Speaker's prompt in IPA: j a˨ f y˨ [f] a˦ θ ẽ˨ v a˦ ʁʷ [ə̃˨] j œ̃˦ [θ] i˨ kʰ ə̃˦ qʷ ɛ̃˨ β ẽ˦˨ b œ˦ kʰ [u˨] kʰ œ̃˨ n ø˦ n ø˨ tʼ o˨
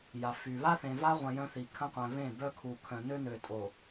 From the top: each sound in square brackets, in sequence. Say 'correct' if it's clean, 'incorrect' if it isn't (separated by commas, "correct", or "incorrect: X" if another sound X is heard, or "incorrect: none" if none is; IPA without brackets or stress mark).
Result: incorrect: β, correct, correct, correct